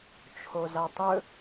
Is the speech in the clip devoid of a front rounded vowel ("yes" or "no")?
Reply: yes